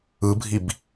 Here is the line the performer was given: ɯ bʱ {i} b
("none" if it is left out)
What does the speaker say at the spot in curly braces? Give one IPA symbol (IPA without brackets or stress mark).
i